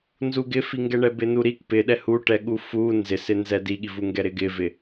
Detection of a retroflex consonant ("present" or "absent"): present